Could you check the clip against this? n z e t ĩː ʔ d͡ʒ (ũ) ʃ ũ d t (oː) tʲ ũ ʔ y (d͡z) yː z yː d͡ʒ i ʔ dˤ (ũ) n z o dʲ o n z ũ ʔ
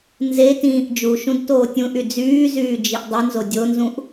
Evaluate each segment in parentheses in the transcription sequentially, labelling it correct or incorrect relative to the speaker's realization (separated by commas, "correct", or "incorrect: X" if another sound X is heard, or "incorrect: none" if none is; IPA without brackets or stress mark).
incorrect: u, correct, correct, incorrect: u